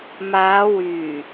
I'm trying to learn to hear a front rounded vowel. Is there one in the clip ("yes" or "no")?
yes